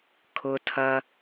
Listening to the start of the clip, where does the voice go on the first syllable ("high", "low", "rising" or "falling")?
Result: low